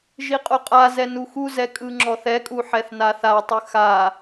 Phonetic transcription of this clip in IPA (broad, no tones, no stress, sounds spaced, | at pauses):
ʒ i qʼ o qʼ a z ɛ n u x u z ɛ kʼ ɯ ŋ͡ǁ ɔ θ ɛ kʼ u ħ ɛ θ n a θ a tˤ ɯ x a